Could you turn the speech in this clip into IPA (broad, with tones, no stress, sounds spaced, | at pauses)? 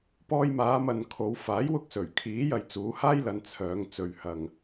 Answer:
p ɔː˧ j m aː˨˧ m ɐ˨ n kʰ o˨˧ w f aː˨˥ j w ʊ˧ k̚ s ɵ˨˩ ɥ kʰ iː˨˥ j ɐ˨ j t͡s uː˨˧ h aː˥ j l ɐ˨˧ n t͡sʰ œː˨˧ ŋ t͡s ɵ˨ ɥ h ɐ˨ ŋ